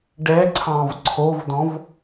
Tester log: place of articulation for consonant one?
retroflex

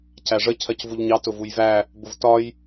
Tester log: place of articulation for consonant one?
palatal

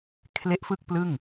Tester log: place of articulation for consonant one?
velar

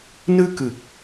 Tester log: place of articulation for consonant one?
alveolar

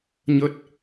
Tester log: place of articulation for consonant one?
palatal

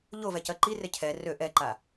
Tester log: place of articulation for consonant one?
palatal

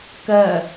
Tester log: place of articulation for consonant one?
velar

